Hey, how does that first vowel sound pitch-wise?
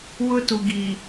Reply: high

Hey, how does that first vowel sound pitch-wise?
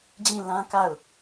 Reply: falling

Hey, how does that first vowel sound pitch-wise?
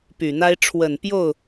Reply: low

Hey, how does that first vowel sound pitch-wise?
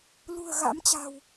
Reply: low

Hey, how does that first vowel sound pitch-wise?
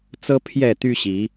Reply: high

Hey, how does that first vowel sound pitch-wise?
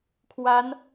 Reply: rising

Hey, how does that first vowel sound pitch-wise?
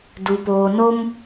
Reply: low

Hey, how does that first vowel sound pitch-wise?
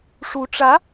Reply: rising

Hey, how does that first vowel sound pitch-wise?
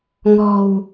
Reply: low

